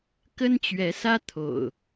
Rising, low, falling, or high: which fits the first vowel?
high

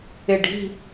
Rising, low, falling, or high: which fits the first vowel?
low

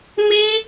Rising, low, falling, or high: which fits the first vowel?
high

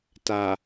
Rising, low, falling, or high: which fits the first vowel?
low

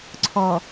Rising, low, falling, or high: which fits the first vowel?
low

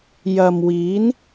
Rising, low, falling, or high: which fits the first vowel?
low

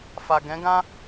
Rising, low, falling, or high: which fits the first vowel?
low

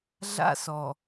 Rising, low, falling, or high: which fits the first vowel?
high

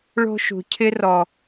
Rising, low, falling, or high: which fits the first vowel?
high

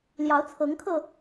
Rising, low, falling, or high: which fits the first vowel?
rising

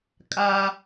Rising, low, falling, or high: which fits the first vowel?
high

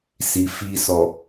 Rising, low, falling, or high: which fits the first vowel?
low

